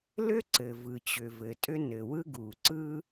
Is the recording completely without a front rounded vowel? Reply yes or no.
no